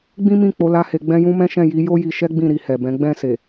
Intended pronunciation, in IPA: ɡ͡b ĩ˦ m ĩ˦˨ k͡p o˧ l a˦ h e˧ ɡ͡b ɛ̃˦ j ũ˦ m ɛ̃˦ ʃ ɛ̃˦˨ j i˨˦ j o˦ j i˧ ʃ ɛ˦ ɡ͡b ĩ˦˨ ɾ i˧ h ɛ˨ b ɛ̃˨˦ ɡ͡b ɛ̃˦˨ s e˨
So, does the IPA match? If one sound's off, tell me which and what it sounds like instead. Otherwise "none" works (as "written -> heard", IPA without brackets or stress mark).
none